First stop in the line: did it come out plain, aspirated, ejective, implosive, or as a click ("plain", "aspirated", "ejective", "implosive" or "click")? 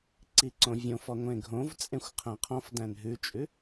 click